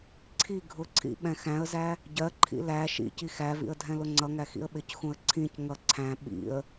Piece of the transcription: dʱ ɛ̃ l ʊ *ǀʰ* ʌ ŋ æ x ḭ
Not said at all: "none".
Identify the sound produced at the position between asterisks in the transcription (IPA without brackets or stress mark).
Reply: ŋ͡ǀ